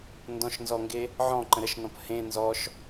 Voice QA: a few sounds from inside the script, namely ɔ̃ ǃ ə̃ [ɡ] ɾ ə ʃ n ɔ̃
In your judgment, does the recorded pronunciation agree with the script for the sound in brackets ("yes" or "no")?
no